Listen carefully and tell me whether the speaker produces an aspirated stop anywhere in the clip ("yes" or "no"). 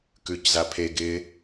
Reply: yes